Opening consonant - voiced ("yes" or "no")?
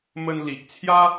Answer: yes